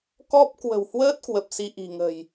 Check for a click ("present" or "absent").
absent